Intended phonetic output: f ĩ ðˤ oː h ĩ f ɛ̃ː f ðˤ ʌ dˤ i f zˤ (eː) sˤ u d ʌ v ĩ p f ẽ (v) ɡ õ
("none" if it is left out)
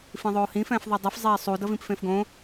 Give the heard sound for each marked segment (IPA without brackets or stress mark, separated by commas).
eː, f